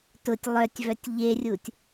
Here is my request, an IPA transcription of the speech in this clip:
t ʊ tʲ lˠ œ tʲ v œ tʲ ʎ e rʲ u tʲ

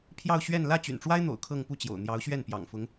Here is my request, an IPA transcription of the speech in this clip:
pʰ j ɑ˥˧ ʊ̯ ɕ ɥ ɛ˥˧ n l ä˥˩ t͡ɕ y̰˨˩ n ʈ͡ʂ w a˥ ɪ̯ n̪ o̰˨˩ ʊ̯ kʰ ɤ˥˧ ŋ p u˥˩ t͡ɕ j o̰˨˩ ʊ̯ n̪ j ɑ˧˥ ʊ̯ ɕ ɥ ɛ˥˩ n p j ɑ̰˨˩ ŋ f ʊ˧˥ ŋ

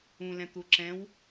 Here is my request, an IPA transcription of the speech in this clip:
ũ l ɛ̃ t̪ u ǁ ɛ̃ w

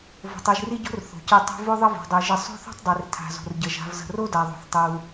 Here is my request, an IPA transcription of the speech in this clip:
v o̤˨ tˤ i˨ ʒ r i˦ ɟ o̤˦ r θ o̤˩ c i˨ tˤ o̤˦ v o˥ ðˤ ə˦ v o̤˩ dˤ i˩ ʒ ɪ˨ sˤ o̤˥ θ o̤˥ tˤ dˤ i˩ r tʰ a̤˨ z o̤˩ r ɟ ə˩ ʒ a̤˨ v z ə̤˨ r o˥ d a˨ ðˤ o̤˩ θ tˤ i˩ w

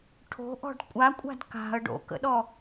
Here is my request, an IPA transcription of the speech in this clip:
ʈʰ o̤ ʔ ɔ̤ ɖ kʷʼ a kʷʼ a̤ d k a̤ ə̯ ɖ o̰ k ə̰ ɗ ɔ

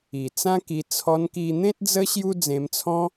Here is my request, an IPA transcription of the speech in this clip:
i˨˩ t͡s ã˦ k i˧ t͡sʰ ɔ˧ n k i˧ n̪ ẽ˦ t̚ d͡z ə˦ ɕ j u˧ d͡z ẽ˧ m t͡sʰ ɔ̃˦

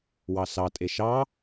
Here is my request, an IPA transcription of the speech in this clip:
w ɑ s ɑ tʼ e ʃ ɑ

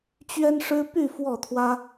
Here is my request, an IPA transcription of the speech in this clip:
t͡ɕ ɥ ɛ˥ n ʂ ɻ̩˥ p y˥˧ f w ɔ˥˩ t̪ʰ w ä˥

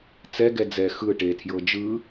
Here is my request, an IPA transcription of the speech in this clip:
t͡s ɛ ɡ ɛ d͡z ɛ x ɯ ʈ e tʰ j ɤ d͡ʒ ɯ

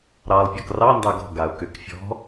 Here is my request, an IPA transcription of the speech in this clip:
ɾ ɑ lˠ pʲ ɔ k r ɑ n d ɑ ɡ ɔ̤ ɡ a ʊ̯ k ʏ k fʲ ɔ̤

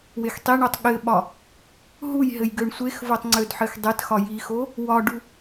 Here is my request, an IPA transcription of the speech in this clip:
w e x tˤ i ɳ o tˤ ɠ ɘ ɓ ɒ | ɦ u j ɦ ɘ j ɡ ø ɳ sʷ e x v o tˤ ŋ͡ǀ ø d ħ ɘ x dˤ e t x ɒ j i x o | w ɒ ɖ u

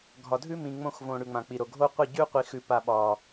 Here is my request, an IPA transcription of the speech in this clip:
ɡʱ ɒ˨ dʱ ʉ˦ m ĩ˨ ŋ͡m õ˦˨ x v õ˨ ɽ ʉ˨ ŋ͡m ã˨ k͡p i˨ ɾ o˨ ɡʱ o˦ qʷ i˦˨ ɟ ʉ˦ qʷ i˨ x ʉ˨ p a˨ ɓ ɒ˨

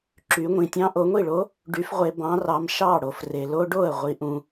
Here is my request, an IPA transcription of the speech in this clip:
ǁ y˩˧ ŋʷ ĩ˩ tʲ ɑ̃˦ ʔ o˩˧ ŋʷ i˥˩ ɭ o˨˥ | ɖ y˨˥ f ʁʷ e˩˧ b ɑ̃˨˥ r ɑ˩˧˩ m ʃ ɑ˥˩ ɽ o˩ f r e˩ l o˦ ɖ o˥˩ ə̯ ʁʷ i˩˧ ʔ ũ˩

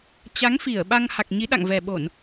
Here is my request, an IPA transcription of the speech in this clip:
t͡ɕ a˨˦ ŋ f i˧˩ ə̯ ɓ a˧ ŋ h a˨˩ k̚ ɲ i˨˦ ɗ a̰˧˨ ŋ v ɛ˨˩ ɓ o˧˩˨ n

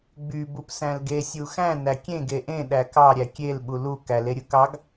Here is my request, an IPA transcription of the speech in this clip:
ɡ͡b y b u p s æ̃ l ɡ e sʲ u x æ̃ n æ kʲ ẽ ɡ e ʔ ẽ ɗ æ k ɑ ɾʲ æ kʲ e l ɓ u l u k æ l e ɾʲ ɯ k ɑ ɡ

